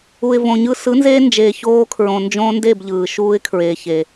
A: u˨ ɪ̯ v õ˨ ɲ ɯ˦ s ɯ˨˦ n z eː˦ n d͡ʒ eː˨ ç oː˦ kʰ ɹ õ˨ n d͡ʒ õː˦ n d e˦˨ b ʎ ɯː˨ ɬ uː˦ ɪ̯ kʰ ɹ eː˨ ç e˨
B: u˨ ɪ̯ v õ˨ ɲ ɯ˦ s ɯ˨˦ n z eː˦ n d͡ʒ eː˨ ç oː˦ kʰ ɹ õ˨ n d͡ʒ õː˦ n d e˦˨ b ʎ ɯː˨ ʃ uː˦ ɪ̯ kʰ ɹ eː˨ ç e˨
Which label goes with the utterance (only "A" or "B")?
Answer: B